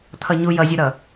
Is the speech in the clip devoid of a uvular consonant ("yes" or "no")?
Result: yes